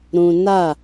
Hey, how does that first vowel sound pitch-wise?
high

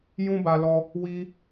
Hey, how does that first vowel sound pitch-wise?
high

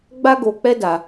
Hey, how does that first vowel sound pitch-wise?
high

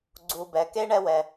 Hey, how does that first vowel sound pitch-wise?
low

